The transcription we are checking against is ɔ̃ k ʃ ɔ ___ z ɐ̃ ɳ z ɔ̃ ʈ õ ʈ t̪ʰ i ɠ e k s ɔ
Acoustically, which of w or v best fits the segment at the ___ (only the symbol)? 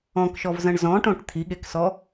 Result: v